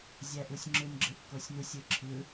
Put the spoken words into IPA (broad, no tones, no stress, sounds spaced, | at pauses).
zʲ æ ʔ u sʲ ŋ͡ǁ ɯ n ɡ͡ǁ ɯ ʔ k o sʲ n u sʲ ɯ ǁʰ ɯ